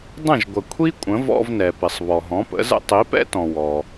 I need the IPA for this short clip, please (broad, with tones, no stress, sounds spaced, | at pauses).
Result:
dˤ ə̃˥˩ ʒ ɡʷ ə˩ kʷʰ i˥ kʷʼ ə̃˩˥ v ɔ̰˧ v n ɛ˩ p ɪ˩ sˤ β ɔ˩ ɦ ɔ̃˩˥ p ə̰˩˥ z ə̰˥ tˤ i˩˥ p ɛ̰˥ t ɔ̃˩ w ɔ˩